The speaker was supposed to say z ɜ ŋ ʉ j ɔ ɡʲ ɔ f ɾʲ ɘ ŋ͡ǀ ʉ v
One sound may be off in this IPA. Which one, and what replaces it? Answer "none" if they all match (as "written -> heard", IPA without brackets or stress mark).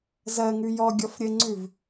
none